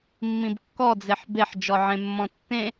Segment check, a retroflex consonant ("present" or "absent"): absent